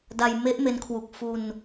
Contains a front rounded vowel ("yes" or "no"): no